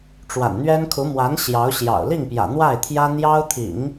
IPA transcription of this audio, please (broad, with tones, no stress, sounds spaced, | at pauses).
ʈ͡ʂ w a̰˨˩ n n̪ ɥ ɛ˥ n kʰ u˧˥ m w a˧˥ n ɕ j ɑ˧˥ ʊ̯ ɕ j ɑ̰˨˩ ʊ̯ l i˥˩ ŋ p j ä̰˨˩ n̪ w a˥˩ ɪ̯ t̪ʰ j ä˥ n̪ j ɑ˥ ʊ̯ t̪ʰ ḭ˨˩˦ ŋ